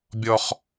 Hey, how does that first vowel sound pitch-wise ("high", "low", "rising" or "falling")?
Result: high